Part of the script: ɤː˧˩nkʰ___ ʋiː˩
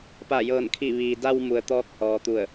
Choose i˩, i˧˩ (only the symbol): i˧˩